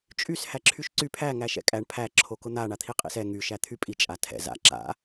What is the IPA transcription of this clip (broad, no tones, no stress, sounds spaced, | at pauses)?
t͡ʃʼ y s h æ ǁʰ y ʃ ǀ y pʰ æ ŋ æ ʃ ɛ̰ kʼ æ ɳ pʰ æ ǁʰ o k ʊ n̪ a ɳ a t̪ʰ i qʼ ḭ s ɛ ŋ y ʃ æ t̪ʰ y pʼ i t͡ʃʼ a tʰ ɛ̰ z a̰ ǁ a̰